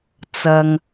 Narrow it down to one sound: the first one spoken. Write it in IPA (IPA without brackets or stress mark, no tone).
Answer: t͡s